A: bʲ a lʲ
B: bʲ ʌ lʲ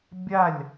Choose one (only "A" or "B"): A